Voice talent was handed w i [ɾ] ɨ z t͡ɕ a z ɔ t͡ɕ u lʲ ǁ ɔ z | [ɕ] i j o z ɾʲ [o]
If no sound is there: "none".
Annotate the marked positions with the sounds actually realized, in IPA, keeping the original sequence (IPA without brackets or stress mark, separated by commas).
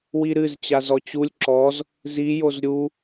ɾ, z, u